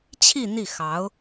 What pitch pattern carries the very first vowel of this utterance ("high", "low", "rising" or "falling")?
falling